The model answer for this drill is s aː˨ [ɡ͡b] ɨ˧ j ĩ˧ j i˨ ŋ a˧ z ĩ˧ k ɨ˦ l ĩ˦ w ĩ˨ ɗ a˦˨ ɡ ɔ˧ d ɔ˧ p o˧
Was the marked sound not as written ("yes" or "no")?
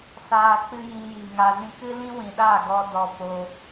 yes